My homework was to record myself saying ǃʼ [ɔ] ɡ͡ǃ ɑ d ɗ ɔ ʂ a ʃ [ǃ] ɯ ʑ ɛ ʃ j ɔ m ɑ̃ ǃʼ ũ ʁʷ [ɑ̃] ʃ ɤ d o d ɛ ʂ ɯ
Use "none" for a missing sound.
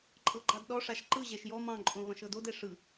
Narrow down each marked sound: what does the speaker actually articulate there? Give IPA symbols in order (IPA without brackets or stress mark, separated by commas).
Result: ɤ, ǃ, ɑ̃